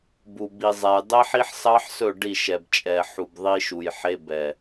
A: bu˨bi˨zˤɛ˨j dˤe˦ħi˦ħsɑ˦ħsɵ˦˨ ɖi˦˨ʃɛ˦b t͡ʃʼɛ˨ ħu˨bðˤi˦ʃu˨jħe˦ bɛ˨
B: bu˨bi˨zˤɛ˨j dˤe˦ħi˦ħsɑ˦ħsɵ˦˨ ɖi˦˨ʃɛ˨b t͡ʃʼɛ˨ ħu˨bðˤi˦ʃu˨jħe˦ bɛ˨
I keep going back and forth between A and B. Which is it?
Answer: B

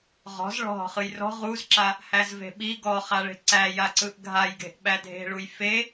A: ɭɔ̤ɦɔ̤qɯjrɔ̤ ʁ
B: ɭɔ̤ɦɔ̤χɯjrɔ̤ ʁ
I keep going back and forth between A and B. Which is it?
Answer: B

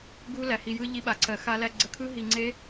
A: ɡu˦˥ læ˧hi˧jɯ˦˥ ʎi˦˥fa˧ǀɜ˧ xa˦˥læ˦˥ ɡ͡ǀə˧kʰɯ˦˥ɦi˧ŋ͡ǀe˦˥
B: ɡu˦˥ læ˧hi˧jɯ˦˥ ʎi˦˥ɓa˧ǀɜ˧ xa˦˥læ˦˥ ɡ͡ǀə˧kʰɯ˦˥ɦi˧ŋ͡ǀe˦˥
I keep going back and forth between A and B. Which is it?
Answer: B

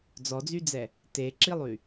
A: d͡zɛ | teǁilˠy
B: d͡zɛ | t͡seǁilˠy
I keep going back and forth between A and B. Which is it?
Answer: A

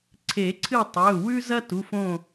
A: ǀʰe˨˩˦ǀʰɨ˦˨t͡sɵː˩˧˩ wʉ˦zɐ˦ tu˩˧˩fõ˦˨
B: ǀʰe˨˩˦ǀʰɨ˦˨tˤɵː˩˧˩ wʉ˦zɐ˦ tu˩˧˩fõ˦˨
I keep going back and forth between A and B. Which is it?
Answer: B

